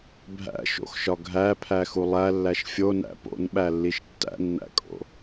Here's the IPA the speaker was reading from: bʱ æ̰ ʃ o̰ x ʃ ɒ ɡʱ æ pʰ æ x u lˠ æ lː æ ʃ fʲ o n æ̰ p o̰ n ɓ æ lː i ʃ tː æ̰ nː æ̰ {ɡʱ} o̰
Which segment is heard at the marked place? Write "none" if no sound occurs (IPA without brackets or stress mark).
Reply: kʼ